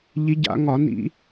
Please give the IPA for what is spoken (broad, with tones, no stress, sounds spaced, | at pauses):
ʎ i˨˦ ɟ a̰˧˩˧ ŋ ɒ˧˩˧ n ḭ˧˩˧